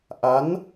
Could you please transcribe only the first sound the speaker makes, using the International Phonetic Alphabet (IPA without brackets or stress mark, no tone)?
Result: ʔ